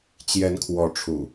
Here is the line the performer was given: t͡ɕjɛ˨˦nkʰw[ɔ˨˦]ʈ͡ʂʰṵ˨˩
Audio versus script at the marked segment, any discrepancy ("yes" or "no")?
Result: no